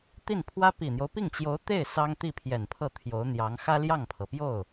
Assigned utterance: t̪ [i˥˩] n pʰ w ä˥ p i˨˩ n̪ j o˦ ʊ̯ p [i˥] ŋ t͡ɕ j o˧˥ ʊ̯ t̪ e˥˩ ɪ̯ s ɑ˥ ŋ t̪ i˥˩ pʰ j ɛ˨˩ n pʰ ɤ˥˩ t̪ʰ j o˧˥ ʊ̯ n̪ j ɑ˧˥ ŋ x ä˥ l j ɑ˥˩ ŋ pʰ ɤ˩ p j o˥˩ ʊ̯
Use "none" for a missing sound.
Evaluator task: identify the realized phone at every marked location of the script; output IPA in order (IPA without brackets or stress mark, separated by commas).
i˥˩, i˥˩